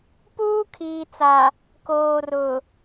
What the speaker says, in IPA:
p uː˦ kʰ iː˨ t͡s a˨ | k oː˨ r ʊ˨

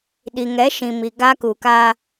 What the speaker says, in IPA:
ɗ i˨ ŋ ɛ˨˦ ʃ ĩ˨ m i˨ ɡ a˦ k u˨ k a˦

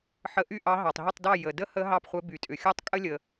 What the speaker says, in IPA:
ħ ə˧˥ ʔ y˥˩ ʔ ɑ˧˥ ɦ ɑ˩ tˤ ɦ ʏ˥˩ tˤ d ɑ˥˩ j ə˩ d ə˥ h ə˧˥ ɦ ɑ˥˩ p χʷ ɛ˧˥ b y˩ tʼ ʏ˩ xʲ a˥ tˤ kʼ ə˥ lʲ ə˩

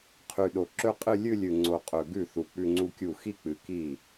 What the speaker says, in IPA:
qʰ ʉ˨˩ ɗ o˨˩ ǁ ɵ˥˧ qʼ ɨ˥˧ lʲ ɨ˥˧ lʲ ɨ˨˩ ŋ͡ǀ o˨˩ qʼ ɵ˨˩ ɡ ʉ˥˩ θ u˨˩ k͡p ʉ˥˧ ŋ͡ǀ u˥˧ kʲ u˥˩ x i˥˧ k͡p ɨ˨˩ k i˥˩

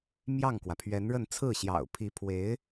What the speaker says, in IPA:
m j ɑ˥˩ ŋ k w ä˩ pʰ ɥ ɛ˧˥ n ɻ ə˥˧ n t͡sʰ ɹ̩˥˩ ɕ j ɑ̰˨˩ ʊ̯ pʰ i˧˥ pʰ w e˧˥ ɪ̯

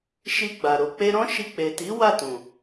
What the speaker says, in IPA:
ʃ i˧ ɡ͡b a˨ ɾ o˨ k͡p e˧ ɾ ɔ̃˦ ʃ i˧ k͡p e˨ t i˨˦ w a˦˨ t ũ˨

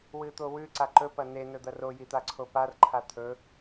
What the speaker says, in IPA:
w ɨ t̪ o w ʉ ǀ a ǃ ɵ p ɐ n e n ɵ d̪ ɐ r o j i t̪ a ǀʰ o p a r ǃʰ a t̪ʰ ɵ

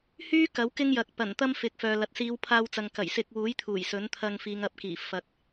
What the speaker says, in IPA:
h yː˥ k ɐ˨˥ w k ɪ˥ ŋ j ɐ˨ k̚ p ɐ˨˩ n t̪ ɐ˥ m f ɪ˨˥ k̚ f œː˨ l ɐ˨˥ t̚ s iː˨˧ w pʰ aː˧ w t͡s ɐ˨ ŋ k ɐ˨˩ j s ɪ˧ k̚ w uː˨˥ j t̪ʰ uː˨˩ j s ɵ˨˥ n t̪ʰ ɐ˧ ŋ f iː˨˧ ŋ ɐ˧ p̚ k iː˨˩ f ɐ˨ k̚

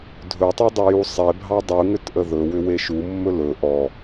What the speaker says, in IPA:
dʱ ɵ tˤ ɯ dˤ ɵ j u sˤ e bʱ ɑ dˤ ɯ ŋ ʏ t ʔ ə ð ɵ w ʏ w e ʃ u mː ɵ l ɵ ʔ ɔ

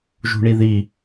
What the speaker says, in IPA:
ʒ ṳ ɳ i ð i

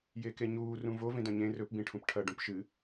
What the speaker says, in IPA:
j e k e ɲ uː r ũ v o v ẽ d ɐ̃ ɲ ẽ r ɵ p b ĩ ʈʰ ũ p ʈʰ ɐ ɖ ũ p ʃ ɨ

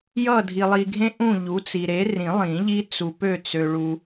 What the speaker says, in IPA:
j ʌ˦˨ dʱ i˨ lˠ i˨ ɡʱ ẽ˦ ʔ ũ˦˨ ʎ u˨˥ t͡s i˨ ɾ e˨˥ r ĩ˨˩˦ lˠ ĩ˨˩˦ ʎ i˦ t͡s u˨ p ø˦˨ t͡s ø˨ ɭ u˨

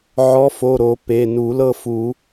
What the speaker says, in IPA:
ʕ ɔ˨˥ f o˩˧˩ ɾ o˨˩˦ p e˩˧˩ n u˨˩˦ l ɤ˥˧ f u˨˩˦

